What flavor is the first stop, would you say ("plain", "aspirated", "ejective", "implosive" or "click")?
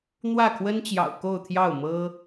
aspirated